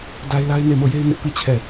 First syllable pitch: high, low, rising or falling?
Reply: high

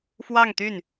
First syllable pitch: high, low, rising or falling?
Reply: falling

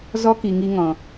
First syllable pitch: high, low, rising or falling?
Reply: high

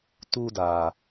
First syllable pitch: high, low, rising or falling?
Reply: high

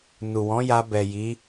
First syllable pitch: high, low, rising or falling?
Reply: low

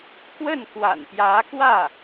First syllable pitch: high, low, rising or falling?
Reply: falling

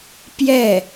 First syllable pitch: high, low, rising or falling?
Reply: falling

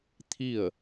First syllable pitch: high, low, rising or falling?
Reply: falling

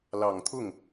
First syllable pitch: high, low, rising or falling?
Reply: low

